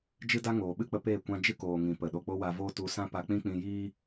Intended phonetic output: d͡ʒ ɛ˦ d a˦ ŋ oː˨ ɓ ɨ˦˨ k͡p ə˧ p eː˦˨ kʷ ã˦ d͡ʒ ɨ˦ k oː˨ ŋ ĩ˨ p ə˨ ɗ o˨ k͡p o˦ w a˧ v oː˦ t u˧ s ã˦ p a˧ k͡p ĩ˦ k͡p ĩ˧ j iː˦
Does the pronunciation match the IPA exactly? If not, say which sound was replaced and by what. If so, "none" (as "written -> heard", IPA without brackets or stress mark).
ɛ˦ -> ɨ˦